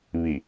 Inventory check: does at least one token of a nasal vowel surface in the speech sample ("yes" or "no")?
no